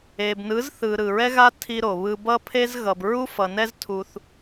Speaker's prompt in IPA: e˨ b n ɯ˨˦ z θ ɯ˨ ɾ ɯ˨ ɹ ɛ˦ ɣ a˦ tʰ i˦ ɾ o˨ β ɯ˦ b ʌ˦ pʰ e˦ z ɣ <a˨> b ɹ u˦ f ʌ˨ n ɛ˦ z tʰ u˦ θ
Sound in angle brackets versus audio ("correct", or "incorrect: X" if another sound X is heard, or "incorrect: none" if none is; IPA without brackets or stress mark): incorrect: ʌ˨